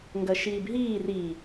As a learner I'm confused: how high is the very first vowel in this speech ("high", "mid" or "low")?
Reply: low